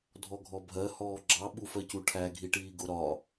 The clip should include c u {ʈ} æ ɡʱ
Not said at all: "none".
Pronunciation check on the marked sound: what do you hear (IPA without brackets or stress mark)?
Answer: ʈʰ